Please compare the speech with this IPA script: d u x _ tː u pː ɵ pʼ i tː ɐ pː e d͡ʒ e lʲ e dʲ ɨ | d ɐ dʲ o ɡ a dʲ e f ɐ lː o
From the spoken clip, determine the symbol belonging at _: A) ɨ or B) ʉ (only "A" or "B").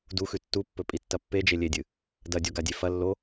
B